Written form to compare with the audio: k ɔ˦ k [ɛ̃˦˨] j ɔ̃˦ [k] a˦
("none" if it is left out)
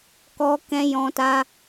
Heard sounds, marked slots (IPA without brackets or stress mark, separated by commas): ɛ̃˦, t